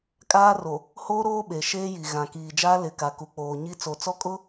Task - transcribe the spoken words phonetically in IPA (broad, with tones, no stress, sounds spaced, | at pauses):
kʼ aː˦ r o˨ | h oː˦ ɾ oː˦ ɓ e˨ ʃ eː˦ j i˨ ɣ ã˨ k iː˨ d͡ʒ aː˦ l ɪ˨ k a˨ k u˨ k͡p oː˨ ɲ i˦ t͡s o˨ t͡s ɔ˦ kʼ ʊ˦